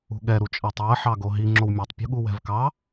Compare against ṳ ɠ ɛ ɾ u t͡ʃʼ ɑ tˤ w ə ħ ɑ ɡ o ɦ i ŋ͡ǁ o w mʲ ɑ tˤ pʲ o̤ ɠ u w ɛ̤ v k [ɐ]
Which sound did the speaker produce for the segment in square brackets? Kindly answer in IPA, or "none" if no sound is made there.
ɑ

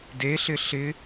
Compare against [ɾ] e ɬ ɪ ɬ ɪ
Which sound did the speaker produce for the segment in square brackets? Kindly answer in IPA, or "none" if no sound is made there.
d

